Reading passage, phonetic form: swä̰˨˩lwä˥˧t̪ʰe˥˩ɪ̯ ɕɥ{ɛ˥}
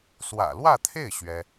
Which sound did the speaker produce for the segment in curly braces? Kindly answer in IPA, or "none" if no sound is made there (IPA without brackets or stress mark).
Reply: ɛ˥